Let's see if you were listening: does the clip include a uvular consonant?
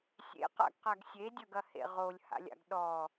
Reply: yes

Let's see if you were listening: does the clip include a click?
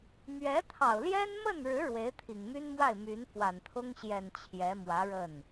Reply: no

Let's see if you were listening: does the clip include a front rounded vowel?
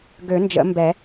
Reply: yes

